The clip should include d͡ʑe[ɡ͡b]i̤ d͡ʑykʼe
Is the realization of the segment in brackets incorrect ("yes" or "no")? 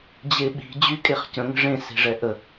yes